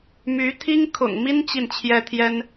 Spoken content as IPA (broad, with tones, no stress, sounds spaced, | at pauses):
m y˧˥ t̪ʰ i˥ ŋ kʰ ʊ̰˨˩ ŋ m i˥ n t͡ɕ i˥˩ n t͡ɕʰ j ɛ˥ t̪ʰ j ɛ˥ n